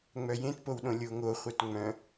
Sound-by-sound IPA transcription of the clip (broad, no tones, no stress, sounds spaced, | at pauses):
ŋ͡m œ j ẽ t p o w ɗ õ lʲ o ŋ o χʷ œ t ŋ͡m œ̃